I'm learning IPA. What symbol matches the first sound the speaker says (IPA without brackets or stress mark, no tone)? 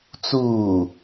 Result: t͡s